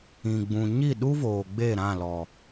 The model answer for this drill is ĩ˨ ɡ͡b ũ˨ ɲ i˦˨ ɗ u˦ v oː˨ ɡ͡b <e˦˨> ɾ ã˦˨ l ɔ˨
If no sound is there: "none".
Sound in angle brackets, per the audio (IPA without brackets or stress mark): e˦˨